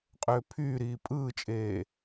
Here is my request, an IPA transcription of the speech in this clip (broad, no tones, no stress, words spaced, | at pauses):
qʼøːpʰyːɾiː pʼɯːt͡ʃʼeː